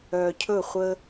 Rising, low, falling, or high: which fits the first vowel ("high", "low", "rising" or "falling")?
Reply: low